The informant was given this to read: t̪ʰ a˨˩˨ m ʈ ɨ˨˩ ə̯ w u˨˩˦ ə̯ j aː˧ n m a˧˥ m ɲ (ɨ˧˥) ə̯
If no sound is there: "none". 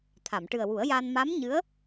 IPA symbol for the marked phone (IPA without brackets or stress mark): ɨ˧˥